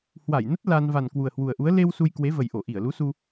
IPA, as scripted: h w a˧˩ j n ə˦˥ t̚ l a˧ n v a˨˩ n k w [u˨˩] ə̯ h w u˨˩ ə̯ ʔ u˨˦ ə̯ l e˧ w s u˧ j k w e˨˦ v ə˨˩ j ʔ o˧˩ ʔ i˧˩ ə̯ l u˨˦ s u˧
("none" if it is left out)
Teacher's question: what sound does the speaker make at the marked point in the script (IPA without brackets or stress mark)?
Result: u˨˩